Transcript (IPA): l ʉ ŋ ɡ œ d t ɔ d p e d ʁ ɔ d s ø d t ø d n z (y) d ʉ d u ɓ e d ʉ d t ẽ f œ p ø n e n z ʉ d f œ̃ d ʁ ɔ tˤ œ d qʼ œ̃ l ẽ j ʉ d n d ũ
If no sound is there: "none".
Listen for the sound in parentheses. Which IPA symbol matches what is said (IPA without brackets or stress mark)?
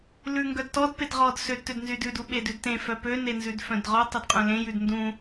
y